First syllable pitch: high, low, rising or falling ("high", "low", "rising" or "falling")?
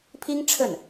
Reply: high